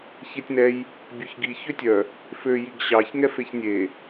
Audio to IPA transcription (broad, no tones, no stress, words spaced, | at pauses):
çetʲnɛj | bʲøçɡi çøtʲœ | fø jiɡɕɑç ŋɛfeçnʲe